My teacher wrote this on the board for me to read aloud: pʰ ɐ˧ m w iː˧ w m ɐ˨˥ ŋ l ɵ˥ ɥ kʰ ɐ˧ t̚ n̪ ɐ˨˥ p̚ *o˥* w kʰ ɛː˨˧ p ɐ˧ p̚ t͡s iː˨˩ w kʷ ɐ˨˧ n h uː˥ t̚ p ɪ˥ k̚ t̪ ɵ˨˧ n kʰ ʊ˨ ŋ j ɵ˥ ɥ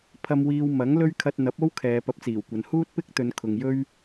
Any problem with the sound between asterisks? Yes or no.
no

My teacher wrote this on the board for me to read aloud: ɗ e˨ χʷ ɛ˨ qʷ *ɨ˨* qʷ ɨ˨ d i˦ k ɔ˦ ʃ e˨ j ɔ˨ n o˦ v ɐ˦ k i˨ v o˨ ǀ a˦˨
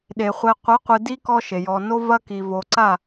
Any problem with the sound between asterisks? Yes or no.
yes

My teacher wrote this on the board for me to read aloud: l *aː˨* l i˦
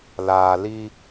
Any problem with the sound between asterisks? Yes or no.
no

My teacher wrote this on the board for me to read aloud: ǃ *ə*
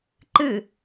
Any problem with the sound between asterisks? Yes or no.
yes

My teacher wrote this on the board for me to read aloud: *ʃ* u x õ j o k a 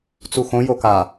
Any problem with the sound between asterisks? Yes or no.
yes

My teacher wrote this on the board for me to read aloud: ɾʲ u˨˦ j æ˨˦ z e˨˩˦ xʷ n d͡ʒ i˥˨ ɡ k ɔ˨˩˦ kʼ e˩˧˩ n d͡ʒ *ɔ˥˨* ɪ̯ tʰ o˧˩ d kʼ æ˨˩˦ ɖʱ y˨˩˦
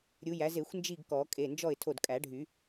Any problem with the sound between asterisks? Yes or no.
no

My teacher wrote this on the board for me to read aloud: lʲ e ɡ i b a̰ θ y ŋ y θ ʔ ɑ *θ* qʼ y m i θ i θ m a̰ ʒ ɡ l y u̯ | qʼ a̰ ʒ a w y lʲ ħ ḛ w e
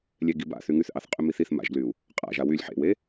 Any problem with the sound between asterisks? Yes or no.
no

